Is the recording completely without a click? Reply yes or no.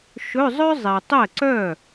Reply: no